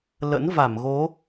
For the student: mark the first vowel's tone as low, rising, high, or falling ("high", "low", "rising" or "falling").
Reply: rising